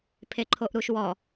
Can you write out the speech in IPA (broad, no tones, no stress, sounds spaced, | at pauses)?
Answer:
pʰ e ǃʰ o ʔ ɾ u ʃ w ɔ